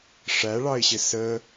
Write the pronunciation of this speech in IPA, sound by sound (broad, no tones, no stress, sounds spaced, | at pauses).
ʂ æ ɭ ɑ ɪ̯ ɕ ɪ s ə